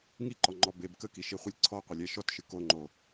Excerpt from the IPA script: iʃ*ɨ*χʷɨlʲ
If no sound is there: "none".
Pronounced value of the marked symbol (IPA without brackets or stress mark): i